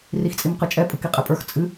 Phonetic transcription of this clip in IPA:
r i x t͡sʼ i m q ɨ t͡ʃʼ ɛ pʼ ɯ k i qʼ ɛ pʼ ə˞ x t͡sʼ ɨ

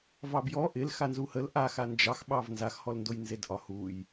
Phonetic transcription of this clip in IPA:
v ɑ b j ɔ ʔ ɪ l x a n z u h ə l ʔ a x a n d͡ʒ ɑ x ɓ ɑ v n z a x h ɔ l n d o j n z e d ʔ ɒ h u j

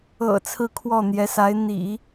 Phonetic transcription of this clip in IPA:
ɤ̰˨˩ t͡sʰ ɹ̩˥˧ kʰ w ɔ˥˩ n̪ j ɛ˧˥ s a˧˥ ɪ̯ n̪ ḭ˨˩˦

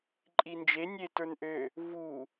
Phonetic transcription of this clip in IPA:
ǃʼ i n d͡ʒ e nʲ e t ə˞ n ʔ ø | v u

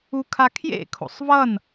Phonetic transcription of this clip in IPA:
u kʰ a kʰ j ḛ kʰ o̰ sˤ v ʌ n

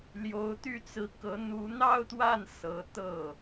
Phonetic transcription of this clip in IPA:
l j o˧˥ ʊ̯ t̪ y˥˩ t͡s ɹ̩˧˥ k ɤ˧˥ n̪ u˧˥ n̪ ɑ˥˧ ʊ̯ t̪ w a˥˩ n s ɤ˧˥ t̪ ɤ˥˩

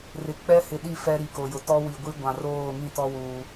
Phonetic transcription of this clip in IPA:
r ɪ˨ k͡p ɛ˦ h ɪ˨ ɗ i˦˨ f ɛ˦ ɾ i˨ k o˨ j ʊ˨ t ɔ˦ w i˨ ɡʷ i˦ ɡʷ ã˨ r oː˦˨ ŋ ĩ˦˨ t ɔ˦ w uː˦

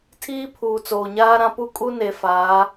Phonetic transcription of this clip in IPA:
tʰ iː˦ pʰ uː˨ t͡s oː˨ ɲ aː˦ ɾ ã˦ p u˦ kʼ u˦ n e˨ f aː˨˦

